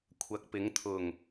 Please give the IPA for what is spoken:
kʷʰ ɐ˨˥ k̚ p ɪ˨˧ ŋ t̪ʰ ʊ˨ ŋ

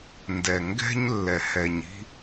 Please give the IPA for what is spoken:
n d ɛ˨ ŋ ɡ ɛ̤˦ ɲ lː ɛ˨ h ɛ˨ ɲ i̤˦

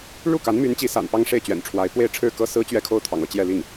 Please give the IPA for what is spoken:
ɻ u˥˩ k a˧˥ n m y˧˥ n t͡ɕ i˧˥ s a̰˨˩ n p ɑ˥ ŋ ʂ e˥˩ ɪ̯ t͡ɕ ɥ ɛ̰˨˩ n ʈ͡ʂʰ w a˧˥ ɪ̯ p w e˥˧ ɪ̯ ʈ͡ʂʰ ɻ̩˥˩ k ɤ˥ s ɹ̩˥ t͡ɕ ɥ ɛ˥˧ kʰ o˥˩ ʊ̯ t̪ʰ ɑ̰˨˩ ŋ ɤ˥˧ t͡ɕ j ɛ˥˧ l i˥˩ ŋ

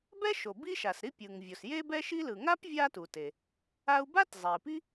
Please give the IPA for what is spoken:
b ɛ˥ ʃ o˩ b i˥ ʃ a˩ s ɾ i˥ pʲ ɯ˩ ŋ vʲ o˩ s j e˥ b ɛ˥ ʃ i˥ l ɯ˩ ŋ a˥ p vʲ a˥ t u˩ t e˩ | a˥ u̯ b a˥ t zˤ e˩ i̯ p i˥

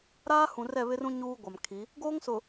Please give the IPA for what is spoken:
ɾ aː˦ h ũ˨ r ɛ˦˨ β ɪ˦ r ũ˦ ɲ uː˦ ɡʷ a˨ m kʰ i˨˦ | ɡ oː˦ ŋ s ʊ˨

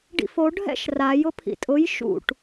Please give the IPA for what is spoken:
ɖ ḭ f o ɖʱ ɛ̰ ʃ r a j ʊ pʰ ḭ tʼ ʊ j ʃ ṵ ʈ

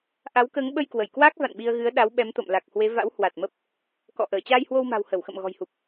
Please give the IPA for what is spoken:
ʔ a˨˦ w k əː˨˦ ŋ ɓ ə˧ j k w ə˧˩ j k w aː˦˥ k̚ v a̰˧˨ n ɓ i˧ ə̯ ɣ ɨ˨˦ ə̯ ɗ a˨˦ w ɓ ɛ˨˦ m t̪ o̰˧˨ m l a˨˩ k̚ h w e˨˦ v a̰˧˥ w h w a˨˩ t̚ m ə˦˥ p̚ | k ɔ̰˧˨ ʔ əː˧˩ t͡ɕ aː˧ j h w o˧ w m a̤˨˩ w h ə˧˩ w x ə̰˧˨ m ɣ ɔ̤˨˩ j h u˨˩ p̚

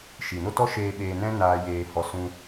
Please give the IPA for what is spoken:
ʃ i˨ n o˦ t ɔ˦ ʃ eː˧ ɓ eː˧ n ɛ̃˦ n aː˧ j eː˧ h ɔ˧ s ũ˧

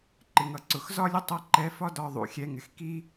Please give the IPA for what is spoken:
ǃ ɪ˨ ŋ ʌ˨ ǀ ʊ˨ x z ɒ˦ lʲ ə˧ tˤ ʌ˨˦ ǃ ɛ˨˦ f ɒ˦ d ɒ˧ ðˤ ṵ˨ xʲ ɛ˧ ŋ ɪ˨ x k i˦

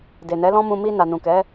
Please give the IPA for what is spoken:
d e˨ n ɛ˨˦ l ɔ̃˦ m ũ˧ m i˧ n a˨ n ũ˨ k ɛ˨˦

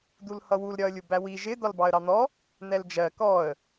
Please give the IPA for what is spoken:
d̪ u l h ʌ w u l ɾʲ ɒ ə̯ lʲ u b æ w i ʒ ɪ d̪ ɒ l b ɑ ə̯ ɾ ɑ n̪ ɔ | n̪ ɛ l d͡ʒ ɜ k ɔ ə̯

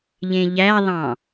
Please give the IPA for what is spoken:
ʎ ẽ ʎ æ ðˤ ɑ̃

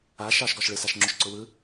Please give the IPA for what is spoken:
a ʃ ɑ ʃ ɡ ɒ ʃ ɭ ɯ s a ʃ ŋ͡ǁ ʊ ʃ ǀ ʊ w ɯ

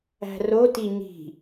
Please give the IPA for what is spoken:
æ̤ r o t i ɲ i̤

